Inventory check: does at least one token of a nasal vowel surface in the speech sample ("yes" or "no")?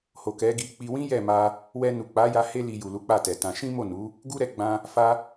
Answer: yes